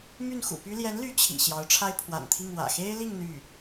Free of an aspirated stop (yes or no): no